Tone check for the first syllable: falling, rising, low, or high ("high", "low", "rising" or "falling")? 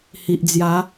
low